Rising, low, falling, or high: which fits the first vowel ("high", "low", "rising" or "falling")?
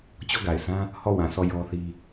falling